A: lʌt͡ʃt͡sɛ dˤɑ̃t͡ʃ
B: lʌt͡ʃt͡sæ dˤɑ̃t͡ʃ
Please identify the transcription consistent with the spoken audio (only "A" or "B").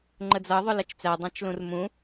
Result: B